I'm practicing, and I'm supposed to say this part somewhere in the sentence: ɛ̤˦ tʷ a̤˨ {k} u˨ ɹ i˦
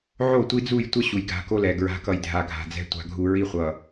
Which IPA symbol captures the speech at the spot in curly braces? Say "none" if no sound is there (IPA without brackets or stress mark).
ɡʱ